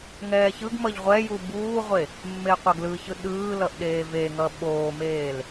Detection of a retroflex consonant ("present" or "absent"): absent